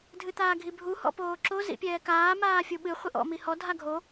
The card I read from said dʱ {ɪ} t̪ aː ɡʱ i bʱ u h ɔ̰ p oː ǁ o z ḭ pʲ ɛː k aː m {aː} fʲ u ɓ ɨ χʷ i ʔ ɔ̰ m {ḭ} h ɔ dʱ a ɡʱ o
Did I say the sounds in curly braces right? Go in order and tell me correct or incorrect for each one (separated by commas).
incorrect, correct, incorrect